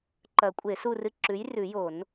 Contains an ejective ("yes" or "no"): yes